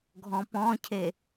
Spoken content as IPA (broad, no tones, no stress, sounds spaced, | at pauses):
ɡʱ ɔ̃ p ɔ̃ cʰ e